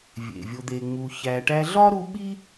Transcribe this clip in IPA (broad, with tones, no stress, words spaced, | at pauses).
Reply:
vʲḛ˩vʲo˨d̪e˨ŋ͡mu˨ çæ˨ʈæ˦ ɮɒ˥ɾu˦ ɓi˥